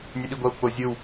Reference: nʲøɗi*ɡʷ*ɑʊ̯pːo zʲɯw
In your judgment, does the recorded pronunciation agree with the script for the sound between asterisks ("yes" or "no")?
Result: yes